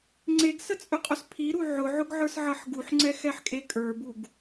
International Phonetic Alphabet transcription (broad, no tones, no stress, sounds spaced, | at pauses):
ŋ͡ǀ e ɡ s ə t͡sʼ ɵ qʼ ɵ s pʰ i ɾ u ʕ ʊ ʕ ʊ ɡ ʕ ə˞ s ʕ ʌ ħ ɡ u ħ ŋ͡ǀ ɛ x ɛ ħ kʼ e kʼ ə˞ b u ɡ